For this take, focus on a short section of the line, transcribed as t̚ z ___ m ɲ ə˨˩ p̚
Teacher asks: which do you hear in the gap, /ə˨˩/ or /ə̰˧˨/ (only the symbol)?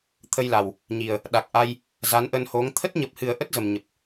ə˨˩